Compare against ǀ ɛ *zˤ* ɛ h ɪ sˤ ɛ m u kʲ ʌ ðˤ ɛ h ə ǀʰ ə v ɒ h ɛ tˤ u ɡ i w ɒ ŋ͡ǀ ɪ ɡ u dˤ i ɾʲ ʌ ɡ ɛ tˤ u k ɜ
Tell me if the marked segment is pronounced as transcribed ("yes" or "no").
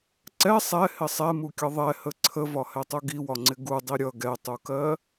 no